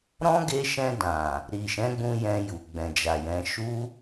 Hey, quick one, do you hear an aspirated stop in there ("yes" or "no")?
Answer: no